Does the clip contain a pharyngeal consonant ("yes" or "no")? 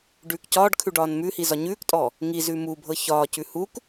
no